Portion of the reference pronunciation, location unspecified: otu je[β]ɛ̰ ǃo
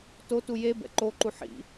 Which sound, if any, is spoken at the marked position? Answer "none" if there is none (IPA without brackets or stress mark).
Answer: b